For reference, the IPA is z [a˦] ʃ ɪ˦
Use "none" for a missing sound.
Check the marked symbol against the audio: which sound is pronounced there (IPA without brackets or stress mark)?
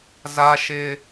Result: a˦